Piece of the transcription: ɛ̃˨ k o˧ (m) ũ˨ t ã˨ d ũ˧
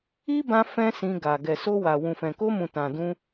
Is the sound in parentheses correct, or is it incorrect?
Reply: correct